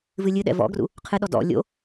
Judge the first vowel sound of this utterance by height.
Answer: high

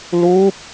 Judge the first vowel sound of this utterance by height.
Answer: high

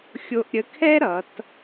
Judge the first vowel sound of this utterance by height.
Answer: mid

